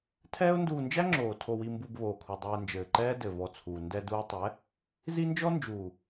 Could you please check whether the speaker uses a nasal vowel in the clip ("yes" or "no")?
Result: no